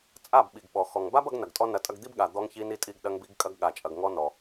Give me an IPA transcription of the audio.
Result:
t͡sʼ a˦˨ b ɓ i˨ ɡ ɓ ɔ˨ x ɔ˨ ŋ b a˦ b ɐ˧ ɡ n ɐ˨ ɡ tʼ ɔ˦ n ɐ˧ tʼ ɐ˧ ɡ d̪ i˦ b ɠ a˨ d̪ ɔ˧ ŋ ç i˧ n i˧ tʼ i˧ ɡ ɗ ɐ˧ ŋ b i˧ ɡ kʼ ɐ˧ ɡ ɠ a˨ t͡ʃʼ ɐ˨ ɡ ŋ ɔ˧ n ɔ˨

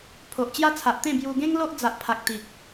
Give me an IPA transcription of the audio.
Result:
pʰ o˨ ʔ t͡ɕ j a˦ t͡sʰ a˨ ʔ t̪ ẽ˥˧ b j u˧ ɡ ẽ˦ ŋ l o˦ ʔ d͡z a˨ ʔ pʰ a˨ k̚ t̪ i˨ k̚

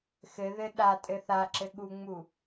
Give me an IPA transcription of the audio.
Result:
x ɘ ð ɘ ɗ a tʼ ɘ θ a ǁ ɘ ɠ u ŋ͡m u

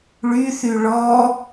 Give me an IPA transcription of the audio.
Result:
ɭ y θ y ɭ ɔ

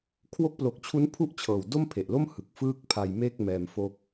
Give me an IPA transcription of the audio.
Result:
kʰ w o˦˥ k̚ p l o˨˩ k̚ t͡ɕʰ u˦˥ n pʰ u˥˩ ʔ t͡ɕʰ ɤː˨˩ w d o˥˩ m pʰ e˨˩ ʔ l o˥˩ m h ɯ˨˩ k̚ f ɯː˥˩ k̚ pʰ a˧ j m e˥˩ k̚ m ɛː˧ m f o˥˩ k̚

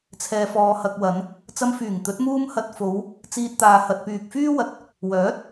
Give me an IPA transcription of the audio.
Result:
t͡sʰ ɛː˨ f ɔː˨ h ɐ˨ k̚ w ɐ˨˧ n | t͡s ɐ˧ m f yː˨˩ ŋ t̪ ɵ˨˥ t̚ m uː˥ m h ɐ˧ t̚ f o˨˧ w | t͡s iː˧ t̚ t̪ aː˨ h ɐ˨ t̚ p yː˨ k̚ f yː˥ w ɐ˨ t̚ | w œː˨˥ t̚

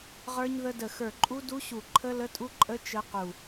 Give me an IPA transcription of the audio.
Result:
ʁ ə˞˦˥ ɲ ð ə˦˥ d ə˧˩ x ə˞˧˩ ǃʼ u˦˥ d u˦˥ ɕ u˧˩ ǃʰ ə˦˥ l ə˦˥ tʼ u˦˥ ǃʼ ə˦˥ t͡ʃ ə˦˥ q u˧˩

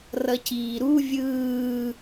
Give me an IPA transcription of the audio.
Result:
r ʌ c iː ɾ u vʲ ɯː

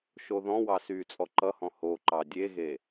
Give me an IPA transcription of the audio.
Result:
ʃ o ð ɔ̃ w ɑ s yː t͡sʼ ɔ ǃ ʌ h ɔ̃ h o ǃ ɑ dʲ e ɣ e

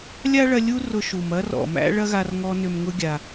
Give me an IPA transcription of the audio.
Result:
lʲ a˥ ɭ ɐ˧ lʲ u˥ r ʊ˧ ʃ u˩ m ɐ˥ r ɔ̰˩ m æ̰˥ ɭ ɐ˥ ɣ a˧ r ŋ ɔ˧ n ʏ˩ m ŋ ʊ˧ ɡʲ a˩

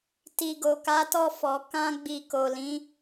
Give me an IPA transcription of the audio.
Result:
t i˨ ɡ o˨ k a˨˦ t ɔ˦˨ f ɔ˨˦ k ã˧ ɡ͡b i˨ k o˨ l ĩ˨˦

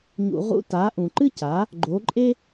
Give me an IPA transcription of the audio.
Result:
ɲ ṵ˨ ʁ ṵ˧˥˧ t a˨˥ ʔ ũ˨ ǃ ɨ˥ c a˨˥ | ɡ͡ǃ o˨˥ ǃʼ e˥

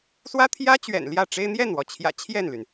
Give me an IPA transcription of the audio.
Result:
s w ä˥ t̪ʰ j ä˥ t͡ɕ ɥ ɛ̰˨˩ n l j ä˥˩ ʈ͡ʂ e˥ ɪ̯ n̪ j ɛ˥˩ n w ɔ˩ t͡ɕʰ j ä̰˨˩ t͡ɕʰ j ɛ˥˩ n l y˩ n

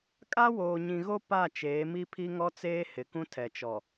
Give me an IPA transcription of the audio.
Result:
kʼ a˦ w oː˨ ɲ ĩ˨ ɣ o˦ p a˦˨ t͡ʃ eː˨˦ m i˦ pʰ i˦ ŋ ɔ˦ t͡s eː˦ h ɪ˨ k ũ˦ tʰ ɛ˨ t͡ʃ ɔ˨

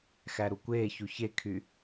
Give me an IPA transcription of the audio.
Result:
x æ ɾ u kʷ eː ç u ç e kʰ y

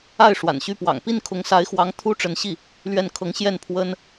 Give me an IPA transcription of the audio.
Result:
a˥˩ ɪ̯ ʂ w a̰˨˩ n ɕ y˥˩ p w ɑ̰˨˩ ŋ p i˥˩ n kʰ ʊ˧˥ ŋ s a˧˥ ɪ̯ x w ɑ˧˥ ŋ t̪ʰ u˥ ʈ͡ʂ ə˧˥ n ɕ i˥˩ | l ɥ ɛ˥˩ n kʰ ɤ˧˥ ŋ ɕ j ɛ˥˩ n pʰ w ə˥ n

